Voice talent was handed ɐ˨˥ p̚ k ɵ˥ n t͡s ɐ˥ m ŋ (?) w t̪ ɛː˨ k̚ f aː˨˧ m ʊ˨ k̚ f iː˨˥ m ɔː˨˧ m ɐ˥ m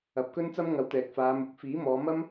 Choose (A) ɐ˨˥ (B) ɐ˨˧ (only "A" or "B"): A